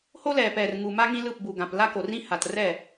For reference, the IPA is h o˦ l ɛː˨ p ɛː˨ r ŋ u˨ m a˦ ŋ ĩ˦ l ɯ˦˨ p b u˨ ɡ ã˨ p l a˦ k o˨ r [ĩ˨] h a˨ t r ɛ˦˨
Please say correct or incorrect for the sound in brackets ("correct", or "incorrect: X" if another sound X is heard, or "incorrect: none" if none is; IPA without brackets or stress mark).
incorrect: ĩ˦